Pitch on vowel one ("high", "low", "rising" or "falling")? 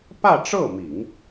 falling